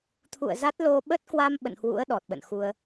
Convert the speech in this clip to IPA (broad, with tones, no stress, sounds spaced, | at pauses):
t̪ʰ ṵ˧˨ ə̯ z a˦˥ t̚ l o˧ ɓ ə˦˥ t̚ k w a˧ m ɓ ə̰˧˨ n h w ṵ˧˥ ə̯ ɗ ɔ˨˩ t̚ ɓ ə̰˧˨ n x u˧ ə̯